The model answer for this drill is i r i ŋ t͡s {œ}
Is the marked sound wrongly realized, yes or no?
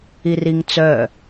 no